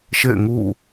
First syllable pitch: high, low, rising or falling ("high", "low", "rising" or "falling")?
falling